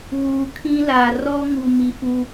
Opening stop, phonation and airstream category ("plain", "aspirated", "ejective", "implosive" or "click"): aspirated